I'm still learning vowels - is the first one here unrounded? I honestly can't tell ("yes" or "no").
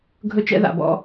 no